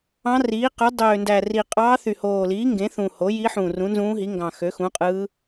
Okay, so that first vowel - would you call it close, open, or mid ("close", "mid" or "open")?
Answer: open